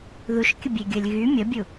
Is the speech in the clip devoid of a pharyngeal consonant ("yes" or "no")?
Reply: yes